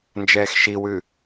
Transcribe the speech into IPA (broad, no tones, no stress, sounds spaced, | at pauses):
n d͡ʒ ɛː x ʃ i w ʉ